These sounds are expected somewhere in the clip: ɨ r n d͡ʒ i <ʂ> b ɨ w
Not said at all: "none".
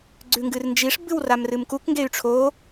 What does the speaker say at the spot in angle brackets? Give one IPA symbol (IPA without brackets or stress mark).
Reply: ʂ